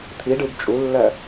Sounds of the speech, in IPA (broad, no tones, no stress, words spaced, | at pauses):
t̪ʰiɖɯb t͡ʃʼulːɜ